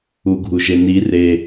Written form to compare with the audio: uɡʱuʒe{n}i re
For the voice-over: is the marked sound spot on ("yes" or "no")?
yes